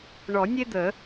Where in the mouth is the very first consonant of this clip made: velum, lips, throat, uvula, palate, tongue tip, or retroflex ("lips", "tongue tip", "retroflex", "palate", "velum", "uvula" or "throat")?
retroflex